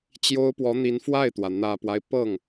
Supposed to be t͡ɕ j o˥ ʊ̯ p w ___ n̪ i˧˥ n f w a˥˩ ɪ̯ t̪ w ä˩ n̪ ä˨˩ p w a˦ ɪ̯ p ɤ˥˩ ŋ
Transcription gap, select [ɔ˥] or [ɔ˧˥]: ɔ˧˥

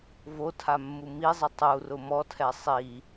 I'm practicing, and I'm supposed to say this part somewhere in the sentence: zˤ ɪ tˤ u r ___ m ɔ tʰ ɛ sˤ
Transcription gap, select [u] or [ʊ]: ʊ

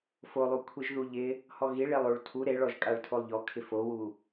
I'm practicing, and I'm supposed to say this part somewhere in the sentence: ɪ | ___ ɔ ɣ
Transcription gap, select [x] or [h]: h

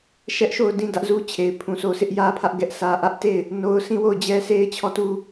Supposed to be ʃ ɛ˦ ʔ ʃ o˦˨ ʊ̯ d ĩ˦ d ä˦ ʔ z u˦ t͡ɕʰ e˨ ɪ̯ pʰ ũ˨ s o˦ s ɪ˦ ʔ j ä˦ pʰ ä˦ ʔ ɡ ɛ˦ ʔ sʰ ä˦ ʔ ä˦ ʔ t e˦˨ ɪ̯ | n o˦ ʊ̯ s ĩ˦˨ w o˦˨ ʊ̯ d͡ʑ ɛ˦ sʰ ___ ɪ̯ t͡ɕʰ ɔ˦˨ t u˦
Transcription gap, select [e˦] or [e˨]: e˦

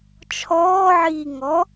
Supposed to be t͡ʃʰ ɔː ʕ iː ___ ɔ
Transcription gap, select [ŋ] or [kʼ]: ŋ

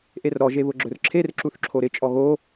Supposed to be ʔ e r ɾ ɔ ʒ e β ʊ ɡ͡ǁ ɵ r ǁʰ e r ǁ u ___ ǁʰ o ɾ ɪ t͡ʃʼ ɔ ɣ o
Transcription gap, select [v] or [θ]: θ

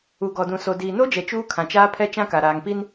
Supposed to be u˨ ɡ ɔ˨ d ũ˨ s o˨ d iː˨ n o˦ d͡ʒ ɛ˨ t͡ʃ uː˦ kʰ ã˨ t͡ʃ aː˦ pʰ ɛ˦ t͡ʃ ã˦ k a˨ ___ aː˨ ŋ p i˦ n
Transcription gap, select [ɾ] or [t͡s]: ɾ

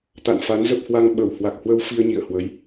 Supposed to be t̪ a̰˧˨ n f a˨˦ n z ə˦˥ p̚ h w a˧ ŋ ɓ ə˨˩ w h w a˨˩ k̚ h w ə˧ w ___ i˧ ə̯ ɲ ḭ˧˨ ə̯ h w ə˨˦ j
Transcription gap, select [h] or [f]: f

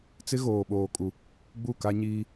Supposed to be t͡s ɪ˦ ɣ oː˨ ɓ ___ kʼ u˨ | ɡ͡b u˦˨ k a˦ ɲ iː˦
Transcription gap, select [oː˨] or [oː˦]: oː˨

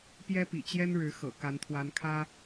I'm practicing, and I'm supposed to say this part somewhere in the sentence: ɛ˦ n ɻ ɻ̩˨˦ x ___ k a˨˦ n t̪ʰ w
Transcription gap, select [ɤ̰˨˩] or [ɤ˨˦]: ɤ̰˨˩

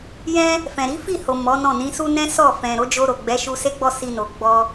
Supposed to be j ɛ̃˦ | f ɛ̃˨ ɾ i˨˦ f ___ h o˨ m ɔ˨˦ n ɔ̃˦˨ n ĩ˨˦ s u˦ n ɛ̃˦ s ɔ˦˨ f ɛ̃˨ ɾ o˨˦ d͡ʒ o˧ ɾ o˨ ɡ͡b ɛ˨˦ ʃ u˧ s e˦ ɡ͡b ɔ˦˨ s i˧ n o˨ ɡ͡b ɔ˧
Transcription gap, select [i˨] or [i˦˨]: i˦˨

